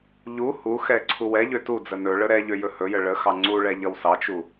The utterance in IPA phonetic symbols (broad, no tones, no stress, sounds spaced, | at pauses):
ʎ u h u x ɛ ǀʰ u w ɛ ʎ ø t u d͡z ə n ɵ ɭ ə ɾ ɛ ʎ ø j ɵ h ɵ j ə ɭ ə x ɑ ŋ͡ǀ u ɭ ɛ ʎ ʌ w s ɑ t͡ʃ u